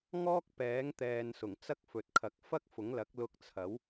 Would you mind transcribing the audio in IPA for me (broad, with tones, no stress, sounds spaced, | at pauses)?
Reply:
ŋ ɔː˥ k̚ p ɛː˨˥ ŋ t̪ ɛː˨ n s ʊ˨˩ ŋ t͡s ɐ˥ k̚ f ɵ˨ t̚ kʰ ɐ˨˥ k̚ f ɐ˥ k̚ f ʊ˨˥ ŋ l ɐ˨˥ k̚ l ʊ˧ k̚ t͡sʰ ɐ˨˥ w